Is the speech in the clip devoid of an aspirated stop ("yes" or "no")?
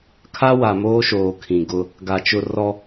no